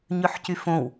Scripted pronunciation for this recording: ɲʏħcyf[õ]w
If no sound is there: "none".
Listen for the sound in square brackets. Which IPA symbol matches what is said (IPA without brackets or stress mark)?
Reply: õ